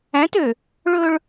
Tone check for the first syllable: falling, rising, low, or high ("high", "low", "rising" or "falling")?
rising